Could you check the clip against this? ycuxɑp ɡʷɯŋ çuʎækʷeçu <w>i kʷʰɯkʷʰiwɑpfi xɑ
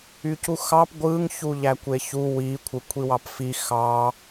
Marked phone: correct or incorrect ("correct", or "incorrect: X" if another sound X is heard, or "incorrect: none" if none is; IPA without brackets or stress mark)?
correct